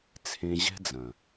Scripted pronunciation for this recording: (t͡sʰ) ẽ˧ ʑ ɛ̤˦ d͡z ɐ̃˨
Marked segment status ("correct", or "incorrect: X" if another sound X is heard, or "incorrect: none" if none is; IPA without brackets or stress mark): correct